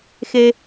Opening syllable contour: high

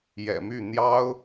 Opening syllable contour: low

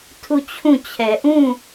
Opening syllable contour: falling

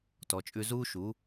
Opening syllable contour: low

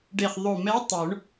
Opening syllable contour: low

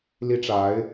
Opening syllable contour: high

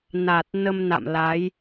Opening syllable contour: low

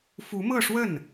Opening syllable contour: rising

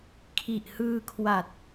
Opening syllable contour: low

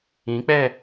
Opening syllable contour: rising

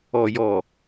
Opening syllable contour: low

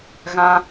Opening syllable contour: high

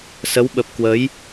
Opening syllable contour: rising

